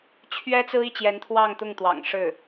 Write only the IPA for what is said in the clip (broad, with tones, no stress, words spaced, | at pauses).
t͡ɕʰɥɛ˥t͡sɹ̩˥i˥˩ t͡ɕjɛ˧˥nt̪ʰwɑ˥˧ŋt̪ʊ˥˩ŋt̪wɑ̰˨˩ŋ ʂɻ̩˥˩